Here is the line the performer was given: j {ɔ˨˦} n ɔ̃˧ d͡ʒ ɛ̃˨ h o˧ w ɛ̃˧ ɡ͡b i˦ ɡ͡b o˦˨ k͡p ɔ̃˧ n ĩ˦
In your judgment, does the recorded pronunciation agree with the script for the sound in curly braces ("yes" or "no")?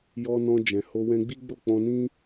no